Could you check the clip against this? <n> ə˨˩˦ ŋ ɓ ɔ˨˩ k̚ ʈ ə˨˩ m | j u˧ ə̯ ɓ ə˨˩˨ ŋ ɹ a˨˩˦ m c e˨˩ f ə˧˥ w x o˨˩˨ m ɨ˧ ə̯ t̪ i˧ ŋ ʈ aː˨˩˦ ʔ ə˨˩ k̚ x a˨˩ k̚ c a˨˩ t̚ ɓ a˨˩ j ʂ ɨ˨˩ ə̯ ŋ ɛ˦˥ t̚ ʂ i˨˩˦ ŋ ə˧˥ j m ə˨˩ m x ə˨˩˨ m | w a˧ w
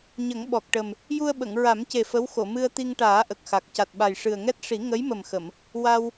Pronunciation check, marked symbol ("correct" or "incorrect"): incorrect